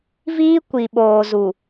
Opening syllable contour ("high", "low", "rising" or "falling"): high